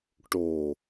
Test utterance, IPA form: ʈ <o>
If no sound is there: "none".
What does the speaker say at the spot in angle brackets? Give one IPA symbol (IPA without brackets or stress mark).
o